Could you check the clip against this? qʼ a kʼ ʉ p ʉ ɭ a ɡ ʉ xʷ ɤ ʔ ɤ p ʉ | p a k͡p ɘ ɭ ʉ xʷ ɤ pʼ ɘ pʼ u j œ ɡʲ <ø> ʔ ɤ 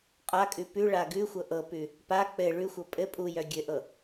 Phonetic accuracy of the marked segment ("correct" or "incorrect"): incorrect